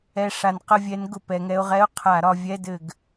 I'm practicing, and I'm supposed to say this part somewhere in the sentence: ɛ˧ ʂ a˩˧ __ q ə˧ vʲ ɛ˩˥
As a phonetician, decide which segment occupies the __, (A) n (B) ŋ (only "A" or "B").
A